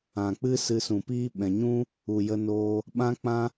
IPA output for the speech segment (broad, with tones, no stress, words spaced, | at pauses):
ã˨k͡pɨ˦ sɨ˧sũ˨piː˦ ɓɛ̃˨ɲũ˦ | u˨jə˧noː˧ | ɓã˦k͡pã˦